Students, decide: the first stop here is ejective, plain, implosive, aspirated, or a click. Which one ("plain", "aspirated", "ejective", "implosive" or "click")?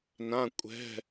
ejective